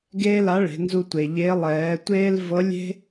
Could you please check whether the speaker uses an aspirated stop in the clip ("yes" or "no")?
no